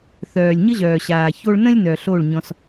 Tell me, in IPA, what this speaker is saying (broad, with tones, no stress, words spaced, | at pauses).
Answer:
θœː˨lʲɲə˦ʑœː˨ɕaː˨ ço˧ɭnə̃˦lʲ nœ˨ɬo˦˨ɭɲɔ̃˧s